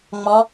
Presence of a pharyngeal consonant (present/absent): absent